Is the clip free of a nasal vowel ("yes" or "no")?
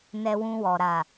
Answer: no